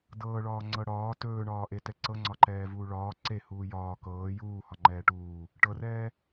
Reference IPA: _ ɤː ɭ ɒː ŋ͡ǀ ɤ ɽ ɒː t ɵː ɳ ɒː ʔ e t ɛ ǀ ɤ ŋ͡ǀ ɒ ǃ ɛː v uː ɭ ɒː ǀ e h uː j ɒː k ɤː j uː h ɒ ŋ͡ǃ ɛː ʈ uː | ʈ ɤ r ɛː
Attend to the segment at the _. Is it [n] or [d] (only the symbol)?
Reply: d